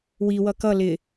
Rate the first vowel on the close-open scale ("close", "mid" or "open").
close